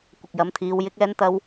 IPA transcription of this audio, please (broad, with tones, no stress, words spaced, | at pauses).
kʷɪ˨k̚jɐ˨˧mt̪ʰiː˨˧w jɪ˥k̚ɛː˥nt̪ɐ˥w